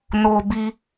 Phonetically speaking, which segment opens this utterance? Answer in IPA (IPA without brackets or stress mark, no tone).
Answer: n